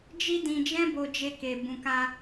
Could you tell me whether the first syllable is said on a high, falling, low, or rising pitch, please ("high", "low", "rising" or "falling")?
high